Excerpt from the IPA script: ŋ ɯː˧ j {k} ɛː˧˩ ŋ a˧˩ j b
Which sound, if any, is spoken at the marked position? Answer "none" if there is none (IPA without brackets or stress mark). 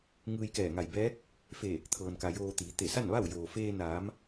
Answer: k